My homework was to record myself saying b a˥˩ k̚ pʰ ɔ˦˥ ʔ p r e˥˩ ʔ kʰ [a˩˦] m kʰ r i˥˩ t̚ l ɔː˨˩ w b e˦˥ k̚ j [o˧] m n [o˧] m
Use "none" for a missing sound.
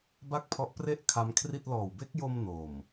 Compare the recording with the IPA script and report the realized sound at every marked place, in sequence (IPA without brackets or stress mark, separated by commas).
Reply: a˦˥, o˧, o˨˩